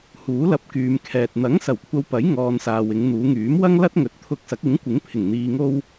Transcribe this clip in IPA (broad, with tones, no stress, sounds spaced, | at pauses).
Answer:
h uː˨˥ l ɐ˧ p̚ k yː˨ m kʰ ɛː˨ t̚ n̪ ɐ˨˥ ŋ s ɐ˨˩ w kʷʰ ɐ˨ w p ɐ˨˥ j ŋ ɔː˨ n s aː˨ w ɪ˨˧ ŋ n̪ uː˨˧ ŋ yː˨˥ m w ɐ˥ ŋ l ɐ˥ t̚ ŋ ɵ˨ t̚ t̪ʰ ʊ˧ k̚ s ɐ˨˥ k̚ ɪ˨˥ ŋ kʷ ɪ˨˥ ŋ pʰ ɪ˨˩ ŋ n̪ iː˨ ŋ o˧ w